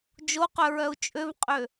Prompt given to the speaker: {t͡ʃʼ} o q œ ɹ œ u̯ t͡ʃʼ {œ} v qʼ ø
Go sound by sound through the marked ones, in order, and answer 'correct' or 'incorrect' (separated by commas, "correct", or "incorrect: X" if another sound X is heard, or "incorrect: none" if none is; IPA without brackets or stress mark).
incorrect: d͡ʒ, incorrect: ø